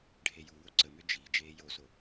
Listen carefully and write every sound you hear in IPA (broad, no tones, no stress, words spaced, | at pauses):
ɖʱejuwo ǀəmø d͡ʒi d͡ʒeːjoso